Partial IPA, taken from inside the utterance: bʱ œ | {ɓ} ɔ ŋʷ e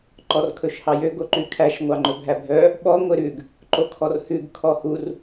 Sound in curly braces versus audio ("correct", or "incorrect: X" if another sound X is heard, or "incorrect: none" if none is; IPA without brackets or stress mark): correct